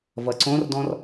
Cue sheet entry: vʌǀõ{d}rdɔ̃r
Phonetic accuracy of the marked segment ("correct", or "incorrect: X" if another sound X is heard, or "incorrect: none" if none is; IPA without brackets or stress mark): incorrect: none